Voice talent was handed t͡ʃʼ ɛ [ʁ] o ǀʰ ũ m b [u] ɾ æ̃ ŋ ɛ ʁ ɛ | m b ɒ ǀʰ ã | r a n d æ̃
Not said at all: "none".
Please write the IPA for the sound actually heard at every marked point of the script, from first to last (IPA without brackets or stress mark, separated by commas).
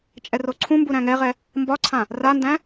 r, u